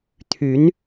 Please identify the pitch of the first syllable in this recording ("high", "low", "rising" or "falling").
rising